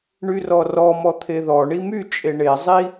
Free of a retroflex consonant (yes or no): no